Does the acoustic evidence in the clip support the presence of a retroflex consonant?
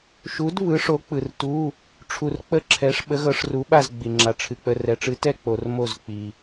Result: yes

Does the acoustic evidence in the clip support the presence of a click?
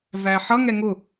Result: no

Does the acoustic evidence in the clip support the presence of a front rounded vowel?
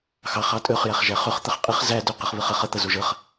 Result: yes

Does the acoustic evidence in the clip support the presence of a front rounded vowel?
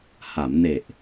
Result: no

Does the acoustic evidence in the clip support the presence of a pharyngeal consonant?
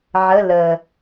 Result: yes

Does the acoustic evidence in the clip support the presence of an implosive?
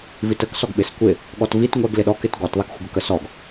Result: yes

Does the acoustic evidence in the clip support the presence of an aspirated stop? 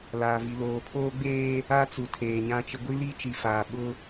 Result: yes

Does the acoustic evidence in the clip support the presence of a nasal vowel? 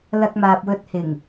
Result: no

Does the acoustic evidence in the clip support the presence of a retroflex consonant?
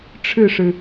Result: yes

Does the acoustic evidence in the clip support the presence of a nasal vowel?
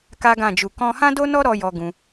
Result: yes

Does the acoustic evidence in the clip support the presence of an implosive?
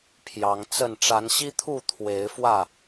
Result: no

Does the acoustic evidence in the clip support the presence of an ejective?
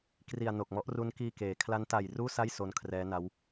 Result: no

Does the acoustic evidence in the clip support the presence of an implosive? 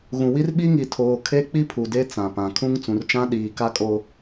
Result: yes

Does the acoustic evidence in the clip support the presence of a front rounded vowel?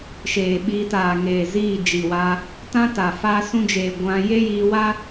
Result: no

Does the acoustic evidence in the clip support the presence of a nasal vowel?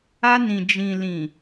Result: yes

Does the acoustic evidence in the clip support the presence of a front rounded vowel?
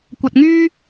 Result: yes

